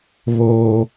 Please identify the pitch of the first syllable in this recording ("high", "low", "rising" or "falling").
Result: high